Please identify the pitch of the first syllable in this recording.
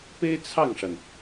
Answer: high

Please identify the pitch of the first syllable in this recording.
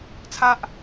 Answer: high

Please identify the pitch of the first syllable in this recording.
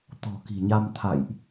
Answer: low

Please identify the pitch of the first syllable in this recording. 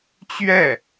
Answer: falling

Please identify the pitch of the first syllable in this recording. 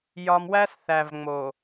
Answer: low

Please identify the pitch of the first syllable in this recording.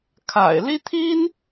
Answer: low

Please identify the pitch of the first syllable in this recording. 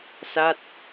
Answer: falling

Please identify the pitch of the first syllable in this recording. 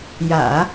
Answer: low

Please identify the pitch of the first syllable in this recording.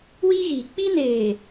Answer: high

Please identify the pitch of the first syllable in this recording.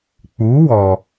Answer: rising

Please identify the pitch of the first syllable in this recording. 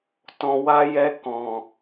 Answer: low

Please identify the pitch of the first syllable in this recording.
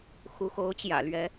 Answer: rising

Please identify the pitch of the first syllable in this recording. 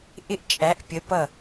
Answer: high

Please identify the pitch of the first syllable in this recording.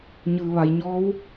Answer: low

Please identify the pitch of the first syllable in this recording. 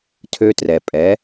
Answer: high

